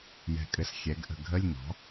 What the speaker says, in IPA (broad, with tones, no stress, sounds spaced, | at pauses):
j ɛ̤˧˩ kʼ ɘ˧˩ s xʲ ɛ˩˥ ɡ ʔ ə̤˧˩ ɡʱ ə˧˥˧ lʲ n ɔ̤˩˥